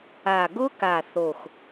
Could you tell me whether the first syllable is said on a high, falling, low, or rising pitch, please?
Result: low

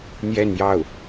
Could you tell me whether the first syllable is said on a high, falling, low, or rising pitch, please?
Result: falling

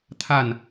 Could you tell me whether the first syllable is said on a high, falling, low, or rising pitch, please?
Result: falling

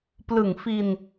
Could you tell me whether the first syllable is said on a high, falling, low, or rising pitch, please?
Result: low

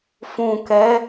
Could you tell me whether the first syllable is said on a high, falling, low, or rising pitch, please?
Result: low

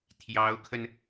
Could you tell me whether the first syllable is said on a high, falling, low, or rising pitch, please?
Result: rising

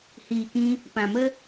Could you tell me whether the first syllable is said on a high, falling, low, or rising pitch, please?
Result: low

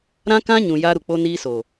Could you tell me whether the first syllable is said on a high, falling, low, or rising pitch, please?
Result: high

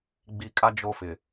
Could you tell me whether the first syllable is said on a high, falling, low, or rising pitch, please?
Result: low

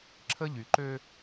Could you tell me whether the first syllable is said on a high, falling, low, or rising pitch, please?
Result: high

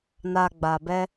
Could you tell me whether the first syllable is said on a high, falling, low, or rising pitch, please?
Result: low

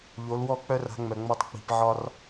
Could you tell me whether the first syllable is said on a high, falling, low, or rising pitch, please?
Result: rising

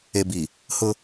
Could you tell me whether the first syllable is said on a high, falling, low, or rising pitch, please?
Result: low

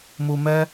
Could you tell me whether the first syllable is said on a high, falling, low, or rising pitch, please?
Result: low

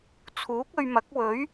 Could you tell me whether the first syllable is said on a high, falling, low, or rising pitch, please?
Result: rising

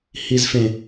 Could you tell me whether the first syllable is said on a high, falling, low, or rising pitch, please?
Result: high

